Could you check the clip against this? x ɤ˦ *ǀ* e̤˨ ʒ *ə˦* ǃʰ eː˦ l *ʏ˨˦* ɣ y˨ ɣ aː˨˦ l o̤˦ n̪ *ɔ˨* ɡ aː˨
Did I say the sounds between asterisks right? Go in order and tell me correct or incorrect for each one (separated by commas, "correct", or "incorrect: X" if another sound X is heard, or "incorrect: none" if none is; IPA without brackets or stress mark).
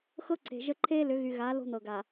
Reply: correct, correct, correct, incorrect: ɤ˨